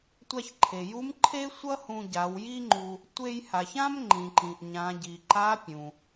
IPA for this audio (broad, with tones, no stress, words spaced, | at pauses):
tʷa˧çǃʰe˩ju˧˥m ǃʰe˥ sʷʌ˥ hũ˧ ɟa˩˧w ji˥ŋ͡ǃu˧ | tʷe˧j ha˩çã˥m ŋ͡ǃĩ˩ǃĩ˩ʔɲã˩˧ɟi˩ ǃa˧˥pʲũ˩